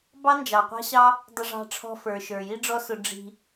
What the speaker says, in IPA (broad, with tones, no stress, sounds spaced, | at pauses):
b ɑ˦ n d͡ʒ ɑ˨ qʷ ɑ̤˦ ɕ ɑ˦ | dˤ ʊ˧ ʐ ɑ̤˧ ʈ͡ʂʰ ɔ̤˧ f ə˞˨ ʃ ə˞˨ j i˦ ɖ͡ʐ ɔ˦ s ʊ˧ ɖ͡ʐ i̤˧